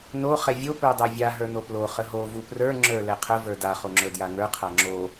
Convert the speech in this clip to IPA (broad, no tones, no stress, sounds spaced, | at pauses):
n o χ ɛ vʲ o p ə˞ dˤ ə˞ vʲ a ɦ ə˞ n o p l o χ ə ɦ o v u p r ə˞ ŋ͡ǁ ə˞ l ɛ qʰ ə v ə˞ d a χ o ŋ͡ǁ ə˞ d j a ŋ ə˞ qʰ a ŋ͡ǁ o